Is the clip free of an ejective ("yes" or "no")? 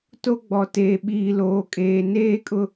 no